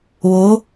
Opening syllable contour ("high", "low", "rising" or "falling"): rising